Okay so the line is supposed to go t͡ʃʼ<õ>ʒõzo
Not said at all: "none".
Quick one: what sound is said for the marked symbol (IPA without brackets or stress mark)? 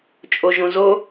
o